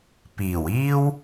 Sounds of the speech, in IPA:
piː˨˩wiː˥w

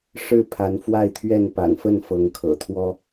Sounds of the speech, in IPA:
ʂɻ̩˥˨pʰa˨˦nfwa˥˨ɪ̯t̪ʰɥɛ˥˨n pa̰˨˩nfə˥˨n fɤ˨˦ŋkʰɤ̰˨˩t̪ʰwɔ˦

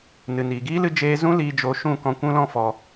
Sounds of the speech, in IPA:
nɨ˨niː˨ɡiː˦lɨ˧ d͡ʒeː˦ zũ˦liː˧d͡ʒo˧ ʃũ˦˨ kɔ̃˦ kʷũ˦lɔ̃˦fɔ˧

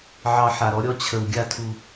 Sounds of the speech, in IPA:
ʕɑ˨ ħa˨ɾɔ˦ɾʲɔ˦ t͡ɕʰə˨w ɡʲa˦˨tʰu˨

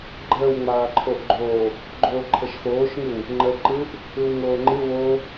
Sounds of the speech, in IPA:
ɡ͡ǃəːwŋ͡maːǃʰoʔɡ͡ǃoː | ɡ͡ǃoːǃʰəʃxoːʃŋɯw | ŋ͡ǃə ǃɯʔ | ɯwŋoːŋ͡ǃɨ wo

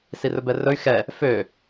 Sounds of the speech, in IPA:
sirɵbɛrɵy̯ xɛ | fø

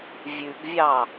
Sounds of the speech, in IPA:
vʲʉɡvʲɑ

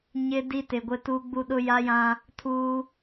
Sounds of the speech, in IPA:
ɲɪ˦ di˦tɪ˨ɡʷɪ˦tu˦ ɡ͡bu˦ɗʊ˦ja˦jã˦ | tʰuː˦

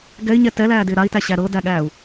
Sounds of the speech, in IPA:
ɡɛi̯ɲɛ tɛlæːdɪː ɾai̯tæɕæ ɾɤdæɠæːu̯

